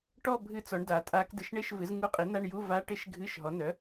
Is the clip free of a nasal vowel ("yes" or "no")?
yes